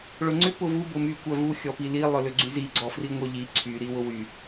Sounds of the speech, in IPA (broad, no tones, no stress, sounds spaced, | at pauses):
ɭ ʊ ŋ͡ǀ ʏ p ʊ v u b ʊ m y kʷ œ v u xʲ ɔ p i l i lˠ œ l ʏ ɡ͡ǀ y z i ɡ͡ǀ ɔ f r i ŋʷ œ ʎ i ǀʰ y ɾ i w ʊ w y